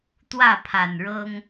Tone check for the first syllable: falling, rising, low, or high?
falling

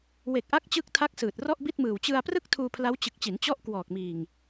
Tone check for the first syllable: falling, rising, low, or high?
low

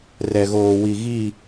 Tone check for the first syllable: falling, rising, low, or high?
low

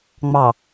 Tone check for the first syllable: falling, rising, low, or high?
low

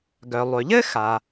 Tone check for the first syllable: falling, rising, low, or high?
low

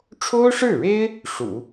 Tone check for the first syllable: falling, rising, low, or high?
high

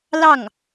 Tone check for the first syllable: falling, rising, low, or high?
falling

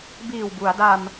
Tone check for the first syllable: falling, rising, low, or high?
low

